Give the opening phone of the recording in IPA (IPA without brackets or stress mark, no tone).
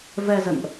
v